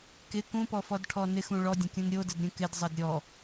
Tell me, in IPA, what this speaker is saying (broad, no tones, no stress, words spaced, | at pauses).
kɪ kũpɔfɔdʈʰɔ nɪxũ ɭɔdʲə̃kʲũn ɾʲodədɾʲũ kɪdzˤəd ɾʲɔ